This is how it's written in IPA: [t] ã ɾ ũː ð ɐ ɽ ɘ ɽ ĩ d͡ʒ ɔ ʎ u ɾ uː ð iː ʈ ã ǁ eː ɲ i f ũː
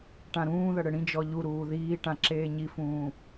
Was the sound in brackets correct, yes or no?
no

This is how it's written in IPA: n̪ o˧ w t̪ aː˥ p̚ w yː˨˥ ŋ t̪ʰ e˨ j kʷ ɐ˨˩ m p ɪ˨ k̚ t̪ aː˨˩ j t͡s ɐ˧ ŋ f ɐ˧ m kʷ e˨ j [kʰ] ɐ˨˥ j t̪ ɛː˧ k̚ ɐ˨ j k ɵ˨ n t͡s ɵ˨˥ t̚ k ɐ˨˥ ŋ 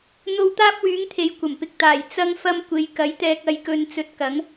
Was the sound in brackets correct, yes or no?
no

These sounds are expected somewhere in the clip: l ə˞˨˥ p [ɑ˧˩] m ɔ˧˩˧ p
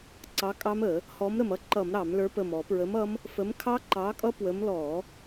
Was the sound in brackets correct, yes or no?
no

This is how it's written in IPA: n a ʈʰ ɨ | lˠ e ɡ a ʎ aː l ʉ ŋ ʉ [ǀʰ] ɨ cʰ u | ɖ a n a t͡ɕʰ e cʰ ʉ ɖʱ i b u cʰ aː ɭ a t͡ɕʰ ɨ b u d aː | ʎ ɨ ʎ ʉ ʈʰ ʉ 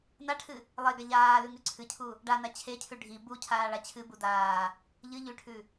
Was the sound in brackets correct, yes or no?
yes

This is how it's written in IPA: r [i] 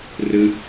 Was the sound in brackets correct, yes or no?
no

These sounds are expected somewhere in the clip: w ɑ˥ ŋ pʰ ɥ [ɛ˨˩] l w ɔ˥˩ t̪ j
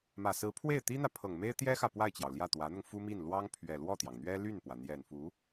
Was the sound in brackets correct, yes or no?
yes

